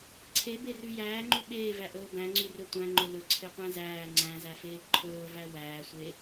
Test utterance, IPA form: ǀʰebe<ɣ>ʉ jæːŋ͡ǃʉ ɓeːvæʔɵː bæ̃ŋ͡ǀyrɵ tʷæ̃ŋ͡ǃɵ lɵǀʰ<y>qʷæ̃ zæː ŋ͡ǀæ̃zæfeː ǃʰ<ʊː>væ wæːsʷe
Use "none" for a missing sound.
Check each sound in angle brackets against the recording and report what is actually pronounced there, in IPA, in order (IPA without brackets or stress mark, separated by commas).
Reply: r, e, ɵː